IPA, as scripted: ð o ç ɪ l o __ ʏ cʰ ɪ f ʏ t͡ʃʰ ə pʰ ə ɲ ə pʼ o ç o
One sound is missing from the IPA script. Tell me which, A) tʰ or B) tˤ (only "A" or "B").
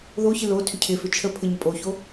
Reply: A